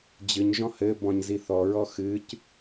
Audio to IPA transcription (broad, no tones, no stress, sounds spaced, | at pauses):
d͡ʑ ɨ ɲ ʒ ɔ̃ h ɘ b ɔ̃ ɲ z i θ ɔ ɹ ɔ x ɨ c